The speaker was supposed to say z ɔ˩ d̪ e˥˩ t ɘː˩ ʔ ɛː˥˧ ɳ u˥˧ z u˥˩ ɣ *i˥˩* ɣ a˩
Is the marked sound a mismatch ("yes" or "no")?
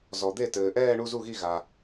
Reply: no